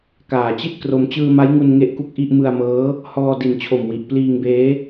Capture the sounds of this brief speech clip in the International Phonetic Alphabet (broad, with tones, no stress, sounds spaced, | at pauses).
k aː˨˩ t͡ɕ i˥˩ t̚ k r o˧ m t͡ɕ ɯː˧ m a˦˥ j ŋ u˧ n ŋ e˥˩ ʔ k u˥˩ k̚ ʔ i˥˩ ʔ m ɯ˧ a̯ m ɤː˦˥ | h ɔː˧ d i˨˩ n t͡ɕʰ o˨˩ m w i˨˩ ʔ p l iː˧ ŋ b eː˦˥